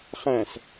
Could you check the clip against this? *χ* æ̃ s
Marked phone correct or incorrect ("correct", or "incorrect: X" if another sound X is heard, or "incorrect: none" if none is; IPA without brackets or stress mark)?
correct